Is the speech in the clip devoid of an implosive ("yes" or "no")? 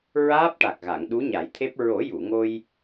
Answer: no